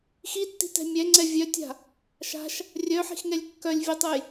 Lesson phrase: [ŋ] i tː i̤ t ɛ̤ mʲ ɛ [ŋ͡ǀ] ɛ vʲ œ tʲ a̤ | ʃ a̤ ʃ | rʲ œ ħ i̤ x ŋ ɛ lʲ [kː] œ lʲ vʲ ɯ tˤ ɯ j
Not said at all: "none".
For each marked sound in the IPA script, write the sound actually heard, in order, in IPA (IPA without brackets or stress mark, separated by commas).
x, ŋ͡ǀ, kː